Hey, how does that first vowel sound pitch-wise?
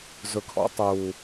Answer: low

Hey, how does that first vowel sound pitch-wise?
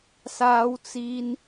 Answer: high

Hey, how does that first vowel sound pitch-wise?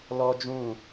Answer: high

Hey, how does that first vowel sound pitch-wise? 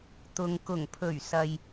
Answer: low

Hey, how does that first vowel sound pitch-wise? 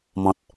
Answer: low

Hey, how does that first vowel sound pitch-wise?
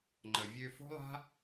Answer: low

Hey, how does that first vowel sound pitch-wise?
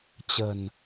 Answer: low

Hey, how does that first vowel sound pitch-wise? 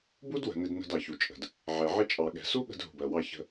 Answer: high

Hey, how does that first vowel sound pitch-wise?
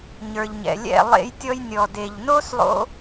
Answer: low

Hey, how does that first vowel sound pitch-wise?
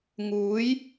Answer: rising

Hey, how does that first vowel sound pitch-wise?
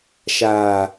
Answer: low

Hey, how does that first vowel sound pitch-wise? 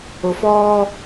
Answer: low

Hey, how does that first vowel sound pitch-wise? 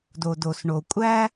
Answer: low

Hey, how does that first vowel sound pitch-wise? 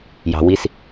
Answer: low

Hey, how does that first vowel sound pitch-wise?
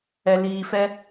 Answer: low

